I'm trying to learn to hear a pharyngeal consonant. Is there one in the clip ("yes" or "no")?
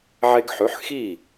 yes